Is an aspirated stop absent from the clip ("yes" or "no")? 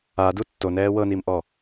yes